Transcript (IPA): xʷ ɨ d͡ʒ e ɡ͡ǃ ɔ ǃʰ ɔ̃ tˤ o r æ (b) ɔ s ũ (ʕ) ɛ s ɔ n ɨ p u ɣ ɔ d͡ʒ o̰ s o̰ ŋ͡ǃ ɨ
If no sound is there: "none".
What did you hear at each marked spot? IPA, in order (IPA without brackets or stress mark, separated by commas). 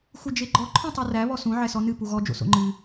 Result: β, ʕ